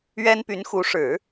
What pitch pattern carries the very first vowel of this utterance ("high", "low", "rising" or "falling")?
high